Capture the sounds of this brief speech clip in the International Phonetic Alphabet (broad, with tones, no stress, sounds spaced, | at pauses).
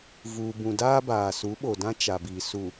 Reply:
v uː˨ b ũ˨ d aː˦ b aː˨ s u˨˦ ɓ o˨ d ã˦ t͡ʃ a˨ b i˨ s u˨